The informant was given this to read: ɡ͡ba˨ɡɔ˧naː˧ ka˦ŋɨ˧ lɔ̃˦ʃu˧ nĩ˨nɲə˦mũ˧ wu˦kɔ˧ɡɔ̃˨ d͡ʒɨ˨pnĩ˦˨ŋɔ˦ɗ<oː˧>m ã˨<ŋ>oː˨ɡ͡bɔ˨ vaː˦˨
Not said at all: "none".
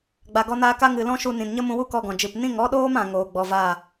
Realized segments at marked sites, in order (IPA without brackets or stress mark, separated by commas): oː˦, ŋ